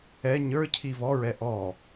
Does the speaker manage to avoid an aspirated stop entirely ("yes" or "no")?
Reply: no